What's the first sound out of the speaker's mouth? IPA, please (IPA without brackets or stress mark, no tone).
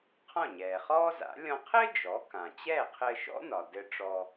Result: qʰ